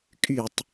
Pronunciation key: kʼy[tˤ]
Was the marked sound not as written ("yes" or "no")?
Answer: no